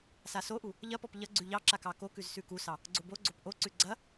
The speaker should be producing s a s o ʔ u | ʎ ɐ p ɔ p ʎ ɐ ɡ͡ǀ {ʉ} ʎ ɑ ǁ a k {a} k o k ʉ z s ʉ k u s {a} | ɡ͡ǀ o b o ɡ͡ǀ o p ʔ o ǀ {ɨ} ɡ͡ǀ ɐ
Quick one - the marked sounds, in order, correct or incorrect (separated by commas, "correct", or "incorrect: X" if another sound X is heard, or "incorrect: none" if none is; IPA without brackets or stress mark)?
correct, incorrect: ɑ, incorrect: ɑ, incorrect: ʉ